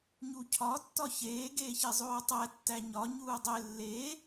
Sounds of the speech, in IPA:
ɲucʰɒ tːɒçeː ɡeːçezˤoːtˤæ tːæɲɒ ɲuːdˤe lːeː

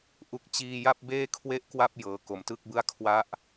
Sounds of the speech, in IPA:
ʔu˥˩k̚t͡ɕiː˥˩ ja˥˩p̚beː˥˩kʰwe˥˩ʔ kwa˥˩p̚ jɤː˧ ko˨˩mtɯ˥˩k̚bɯ˥˩a̯ kʰwa˦˥ʔ

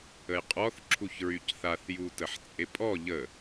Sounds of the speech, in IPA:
əjqʼɔθ ǁʰuçɹycθaθ jutəħt͡sʼepʼɔ ʎə

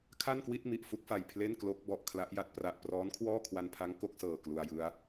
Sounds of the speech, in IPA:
kʰa˥˩nkwi˥˩t̚ mi˨˩ʔfu˥˩k̚fa˨˩j pʰle˥˩nklo˦˥k̚ bɔ˨˩ʔkʰla˦˥ʔja˦˥t̚pra˨˩ʔ prɔː˦˥nkʰwɔː˥˩kʰwa˧npʰa˦˥ŋ ko˦˥k̚sɤː˨˩ klu˧a̯jɯ˦˥a̯

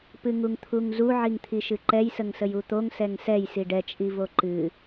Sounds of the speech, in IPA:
pɨŋuŋt̪ʰuŋzu ʕiŋt̪ʰiʃɨǃɛj səŋsəjut̪oŋ sɛŋsɛj siɖɛ t͡ʃʼivoǃɨ

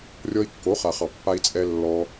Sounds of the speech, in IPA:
rʲɔ˧i̯kːo˨˦χa˨χɑ˨ pːa˧i̯t͡sʼɛ˧ lːɔ˧

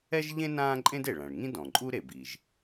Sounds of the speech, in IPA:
ɛ˥ʒʎẽ˥ nãː˥ǃʼẽ˥de˩ɭã˩ɭ ŋĩ˥dɔ̃˩ǃʼu˥ ɾe˩bi˩ʒ

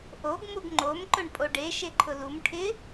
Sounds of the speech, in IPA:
ʔoɡ muɡŋ͡ǃom ǃʊɳpʼoɖe ʃeǃʰʊlum ʈʰɪ

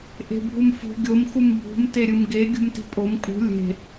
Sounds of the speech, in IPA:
ʔe̤bʱumfṳ ɡʲom xumbʱṳm teɾʲɯmɡe ɡʲṳmti̤pʼom kʼṳ lʲe̤

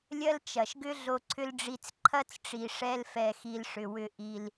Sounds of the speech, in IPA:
lʲɐ˦lt͡ʃɐ˨ʃɡʏ˦ ɮo˧ǀʰʏ˦lɖ͡ʐi˧t͡s ǃʰɐ˦t͡sʈ͡ʂi˨ʂɛ˧l fɛ˧xi˧lʂʏ˨ wʏ˧ʔi˧l

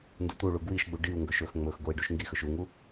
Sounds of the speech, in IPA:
ndut̪uɭu ɡwiʃɡ͡bu ɖiu̯ŋɡɵʃ ɵx ŋ͡mɵx ɡoi̯ɖuʃ ŋɡixɵʃ uŋu

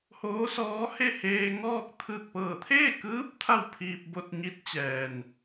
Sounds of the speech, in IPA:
hoː˧˥sɔː˧˥he˥˨ heː˧ŋɔː˥˨k̚ t̪ʰɯː˧˩k̚pɤː˧˩t̪ʰeː˥˨kɯː˧˥p̚ t̪ʰa˥˨wpʰiː˧p̚bo˧t̚ ɲi˧˥t̚t͡ɕɛː˩n

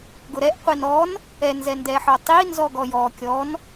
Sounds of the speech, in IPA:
ɡʊɾɛʔ qʷinɔn | ɛnzɛndɛħɔ tˤi nzɔɡɔjɔ kʲɔn

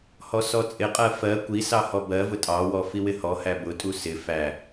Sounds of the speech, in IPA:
hɔsɔt͡sʼɪqʼɜ fɜ kʷisɑ hɔbɜvʊ tʼɑwɔ fiwɪhɔhæ bʊtʼu sɪ fæ

